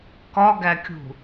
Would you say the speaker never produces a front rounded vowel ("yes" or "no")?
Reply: yes